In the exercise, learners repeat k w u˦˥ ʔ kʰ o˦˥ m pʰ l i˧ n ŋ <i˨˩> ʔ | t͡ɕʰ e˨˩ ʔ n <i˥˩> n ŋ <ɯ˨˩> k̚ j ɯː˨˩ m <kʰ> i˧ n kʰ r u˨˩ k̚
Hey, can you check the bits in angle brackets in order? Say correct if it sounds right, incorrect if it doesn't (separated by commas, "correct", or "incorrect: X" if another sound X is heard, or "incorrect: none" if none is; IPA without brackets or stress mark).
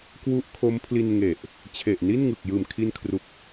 incorrect: e˨˩, correct, correct, correct